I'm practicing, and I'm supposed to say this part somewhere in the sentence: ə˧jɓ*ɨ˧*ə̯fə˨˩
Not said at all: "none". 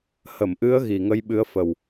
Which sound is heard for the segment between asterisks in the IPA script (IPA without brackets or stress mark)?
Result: ɨ˨˦